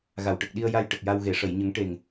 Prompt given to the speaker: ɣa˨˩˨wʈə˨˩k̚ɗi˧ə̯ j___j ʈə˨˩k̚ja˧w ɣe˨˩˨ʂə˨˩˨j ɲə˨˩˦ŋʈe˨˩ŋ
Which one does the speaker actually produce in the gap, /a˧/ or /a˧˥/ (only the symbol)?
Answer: a˧